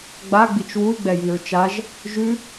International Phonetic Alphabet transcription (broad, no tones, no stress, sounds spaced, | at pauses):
ɡ͡b a ɡ͡b i t͡ʃ w u y̯ ɡ͡b ɛ j i ɹ t͡ʃ a ʒ | ʒ ʉ